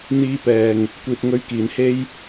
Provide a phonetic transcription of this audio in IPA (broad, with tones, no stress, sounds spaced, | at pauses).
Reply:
n̪ iː˧ p ɛː˨ ŋ | kʷ iː˨ t̚ ŋ ɵ˧ ɥ k iː˨ n h e˥ j